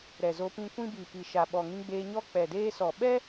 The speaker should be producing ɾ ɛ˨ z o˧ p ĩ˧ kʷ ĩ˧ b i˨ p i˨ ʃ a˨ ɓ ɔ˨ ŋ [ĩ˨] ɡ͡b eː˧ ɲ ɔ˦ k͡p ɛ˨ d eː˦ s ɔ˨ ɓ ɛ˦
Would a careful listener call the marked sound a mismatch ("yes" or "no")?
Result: yes